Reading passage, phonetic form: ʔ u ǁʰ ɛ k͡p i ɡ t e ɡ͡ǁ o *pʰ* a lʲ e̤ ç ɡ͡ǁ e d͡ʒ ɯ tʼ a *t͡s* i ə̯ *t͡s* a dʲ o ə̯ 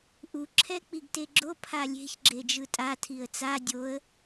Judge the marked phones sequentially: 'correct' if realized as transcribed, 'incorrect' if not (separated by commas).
correct, incorrect, correct